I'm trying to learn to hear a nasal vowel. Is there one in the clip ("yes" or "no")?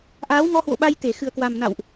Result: no